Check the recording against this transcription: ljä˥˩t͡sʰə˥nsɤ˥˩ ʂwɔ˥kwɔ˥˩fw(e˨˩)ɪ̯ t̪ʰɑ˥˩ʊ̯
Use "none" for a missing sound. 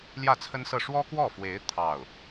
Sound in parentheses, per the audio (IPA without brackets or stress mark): e˧˥